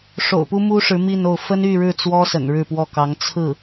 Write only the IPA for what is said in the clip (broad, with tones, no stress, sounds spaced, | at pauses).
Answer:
ʂ o̰˨˩ ʊ̯ p u˥ m u˥ ʂ ɻ̩˧˥ m i˥˧ n o˥˩ ʊ̯ f ə˥ n y˥˧ ɻ ɻ̩˥˩ t͡s w ɔ˥ s ə̰˨˩ n ɻ ɻ̩˥˧ p w ɔ˥˩ k ɑ˧˥ ŋ t͡sʰ ɹ̩˥˩